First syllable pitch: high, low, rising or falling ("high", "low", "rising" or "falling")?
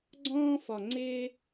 high